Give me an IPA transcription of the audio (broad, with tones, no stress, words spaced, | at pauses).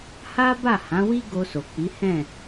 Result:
ha˦ ba˦˨hã˨˦wi˦ ɡo˧so˨k͡pi˨˦hɛ̃˦˨